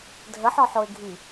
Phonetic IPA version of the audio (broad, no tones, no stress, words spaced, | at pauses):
dʱəħɔħoɪ̯ɡʱi